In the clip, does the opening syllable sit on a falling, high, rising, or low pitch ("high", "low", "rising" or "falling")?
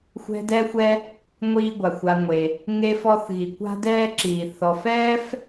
high